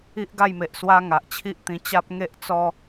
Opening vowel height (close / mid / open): close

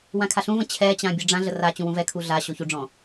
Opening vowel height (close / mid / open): open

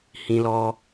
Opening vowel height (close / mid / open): close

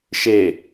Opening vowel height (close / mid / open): mid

